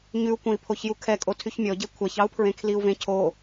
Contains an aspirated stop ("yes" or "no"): yes